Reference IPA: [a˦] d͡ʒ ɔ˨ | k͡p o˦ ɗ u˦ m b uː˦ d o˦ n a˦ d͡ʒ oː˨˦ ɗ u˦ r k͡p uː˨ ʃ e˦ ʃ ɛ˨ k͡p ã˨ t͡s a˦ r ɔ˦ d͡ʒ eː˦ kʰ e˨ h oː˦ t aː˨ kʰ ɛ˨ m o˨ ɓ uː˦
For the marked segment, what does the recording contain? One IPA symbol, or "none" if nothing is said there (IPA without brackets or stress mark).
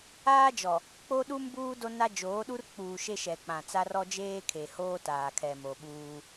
aː˦